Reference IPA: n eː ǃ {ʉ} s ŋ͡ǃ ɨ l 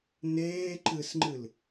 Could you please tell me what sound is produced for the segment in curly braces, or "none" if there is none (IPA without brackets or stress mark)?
ɨ